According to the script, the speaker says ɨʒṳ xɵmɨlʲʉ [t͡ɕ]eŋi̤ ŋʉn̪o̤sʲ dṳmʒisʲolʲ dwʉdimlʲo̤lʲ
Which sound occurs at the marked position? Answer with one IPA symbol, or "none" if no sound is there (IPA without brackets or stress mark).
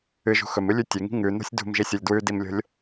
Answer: tʲ